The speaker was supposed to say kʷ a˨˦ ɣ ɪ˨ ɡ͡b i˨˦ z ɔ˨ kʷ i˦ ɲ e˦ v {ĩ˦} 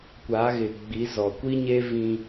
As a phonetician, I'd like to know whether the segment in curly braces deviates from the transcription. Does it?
no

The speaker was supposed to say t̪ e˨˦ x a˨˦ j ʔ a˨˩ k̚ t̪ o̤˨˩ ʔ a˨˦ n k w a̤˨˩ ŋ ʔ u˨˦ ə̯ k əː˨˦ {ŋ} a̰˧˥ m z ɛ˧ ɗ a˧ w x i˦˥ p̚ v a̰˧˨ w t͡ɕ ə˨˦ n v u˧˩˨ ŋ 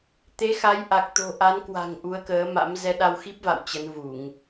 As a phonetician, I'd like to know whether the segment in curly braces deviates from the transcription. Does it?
yes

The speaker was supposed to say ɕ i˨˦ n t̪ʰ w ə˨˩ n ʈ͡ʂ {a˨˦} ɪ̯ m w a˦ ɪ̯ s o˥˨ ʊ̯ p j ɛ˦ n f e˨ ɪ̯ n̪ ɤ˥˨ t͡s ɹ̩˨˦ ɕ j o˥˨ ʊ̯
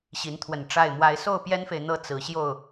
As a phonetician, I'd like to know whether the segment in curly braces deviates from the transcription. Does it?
yes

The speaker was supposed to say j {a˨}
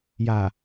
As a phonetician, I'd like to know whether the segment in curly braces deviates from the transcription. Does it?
no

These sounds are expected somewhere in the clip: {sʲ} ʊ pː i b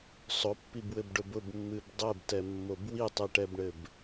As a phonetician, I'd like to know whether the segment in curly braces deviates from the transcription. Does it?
yes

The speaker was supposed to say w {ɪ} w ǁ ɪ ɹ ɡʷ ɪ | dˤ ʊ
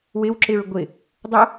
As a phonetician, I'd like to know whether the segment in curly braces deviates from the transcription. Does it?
no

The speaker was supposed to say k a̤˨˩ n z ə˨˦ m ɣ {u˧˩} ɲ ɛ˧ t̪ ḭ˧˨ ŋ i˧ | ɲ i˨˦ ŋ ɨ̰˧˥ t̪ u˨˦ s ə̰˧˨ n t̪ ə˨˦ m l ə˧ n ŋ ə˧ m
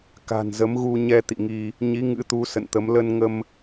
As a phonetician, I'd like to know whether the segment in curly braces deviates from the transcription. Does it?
yes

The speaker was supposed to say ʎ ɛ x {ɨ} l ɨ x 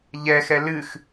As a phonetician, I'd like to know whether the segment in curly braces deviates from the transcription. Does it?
yes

